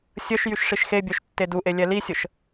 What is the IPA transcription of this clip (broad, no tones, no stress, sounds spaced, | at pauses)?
sʲ ə ʃ j y ʃ ʂ i ʃ x e bʲ œ ʃ tː e d u ʔ e lʲ ɛ l i sʲ ə ʃ